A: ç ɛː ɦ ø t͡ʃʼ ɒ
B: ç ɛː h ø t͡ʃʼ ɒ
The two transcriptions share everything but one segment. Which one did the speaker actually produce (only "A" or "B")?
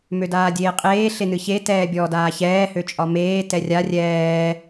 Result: B